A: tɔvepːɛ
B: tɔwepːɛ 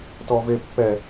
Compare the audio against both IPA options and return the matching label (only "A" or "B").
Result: A